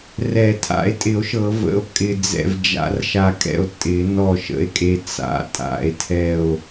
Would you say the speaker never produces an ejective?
no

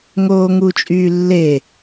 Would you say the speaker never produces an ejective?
no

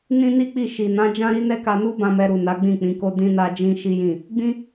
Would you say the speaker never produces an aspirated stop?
yes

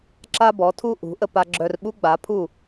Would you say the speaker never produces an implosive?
no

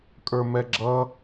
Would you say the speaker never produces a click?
no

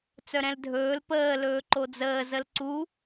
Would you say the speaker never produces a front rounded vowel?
no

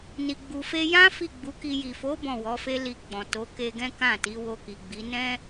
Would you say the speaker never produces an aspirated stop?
yes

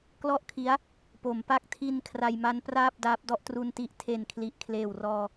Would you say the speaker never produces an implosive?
yes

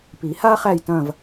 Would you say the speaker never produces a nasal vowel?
no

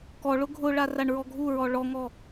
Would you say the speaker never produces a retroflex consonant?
no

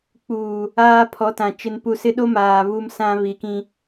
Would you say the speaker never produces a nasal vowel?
no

